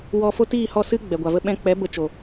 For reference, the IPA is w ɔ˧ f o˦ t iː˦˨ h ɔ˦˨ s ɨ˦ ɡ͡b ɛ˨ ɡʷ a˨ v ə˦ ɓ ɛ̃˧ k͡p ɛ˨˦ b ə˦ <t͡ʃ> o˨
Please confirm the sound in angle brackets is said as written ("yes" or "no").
yes